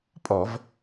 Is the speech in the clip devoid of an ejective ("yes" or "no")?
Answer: no